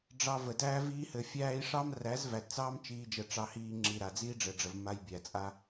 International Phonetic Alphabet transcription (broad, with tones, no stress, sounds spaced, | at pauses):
ɖ͡ʐ ɑ˧ v ə˨ d æː˦ v iː˧ h ɘ˨ fʲ æː˧ i̯ ʂ ɑ˦ m r æ˨˦ z v æ˨ d t͡s ɑː˦ m t͡ʃ iː˦ d͡ʒ ə˧ ʈ͡ʂ ɑ˧ h iː˧ ŋ͡ǁ i˨ ɾ a˨ d͡z iː˦ ɖ͡ʐ ɘ˨ ɖ͡ʐ ə˨ v m a˧ j bʲ æ˨ t͡sʼ a˦